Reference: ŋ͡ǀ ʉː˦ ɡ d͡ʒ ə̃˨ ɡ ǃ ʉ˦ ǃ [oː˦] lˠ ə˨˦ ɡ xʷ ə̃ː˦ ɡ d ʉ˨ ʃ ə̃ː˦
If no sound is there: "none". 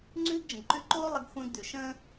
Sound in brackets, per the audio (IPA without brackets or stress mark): oː˦